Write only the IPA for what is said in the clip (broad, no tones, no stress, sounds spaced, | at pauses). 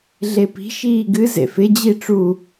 ɮ e p i̤ ʃ iː ɡ ɨ z ḛ f ɪ d͡ʑ i ʈ͡ʂ u